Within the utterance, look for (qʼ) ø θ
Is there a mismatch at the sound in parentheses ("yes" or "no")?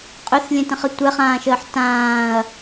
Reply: no